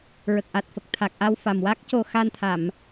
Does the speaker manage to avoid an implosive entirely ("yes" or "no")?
yes